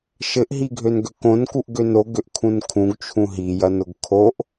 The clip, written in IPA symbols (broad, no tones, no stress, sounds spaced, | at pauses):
ʃ ɘ ʔ ɦ i ɡʱ ø n ɡ ø k õ n k u ʔ ɡ ø n o ɡ ø ʔ kʰ ũ n kʰ ũ ɡ t͡ʃʰ ũ ɦ i j ɐ n ʊ ɡ kʰ o ʔ